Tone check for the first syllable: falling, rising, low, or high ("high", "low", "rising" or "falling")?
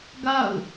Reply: falling